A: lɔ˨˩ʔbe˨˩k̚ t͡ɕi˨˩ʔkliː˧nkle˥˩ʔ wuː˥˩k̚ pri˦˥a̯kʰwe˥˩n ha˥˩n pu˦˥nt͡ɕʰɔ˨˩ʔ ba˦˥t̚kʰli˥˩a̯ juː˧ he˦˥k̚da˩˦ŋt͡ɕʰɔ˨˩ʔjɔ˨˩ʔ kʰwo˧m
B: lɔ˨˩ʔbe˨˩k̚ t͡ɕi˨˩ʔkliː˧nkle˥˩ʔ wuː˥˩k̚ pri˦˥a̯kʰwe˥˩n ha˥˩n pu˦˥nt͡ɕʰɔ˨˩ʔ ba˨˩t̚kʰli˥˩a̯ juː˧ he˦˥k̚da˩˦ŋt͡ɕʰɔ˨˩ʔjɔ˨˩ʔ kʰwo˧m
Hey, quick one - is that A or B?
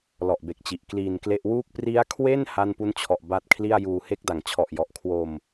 A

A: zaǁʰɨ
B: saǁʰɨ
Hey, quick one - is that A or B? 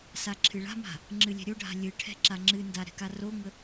B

